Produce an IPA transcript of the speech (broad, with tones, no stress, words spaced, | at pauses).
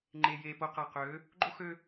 ŋ͡ǃe˨je˨ po˨qa˨qø˨˦ | ɡ͡ǃo˦ xø˦